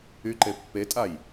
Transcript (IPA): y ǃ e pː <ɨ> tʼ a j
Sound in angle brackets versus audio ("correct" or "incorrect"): incorrect